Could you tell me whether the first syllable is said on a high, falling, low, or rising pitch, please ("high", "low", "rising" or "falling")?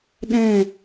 falling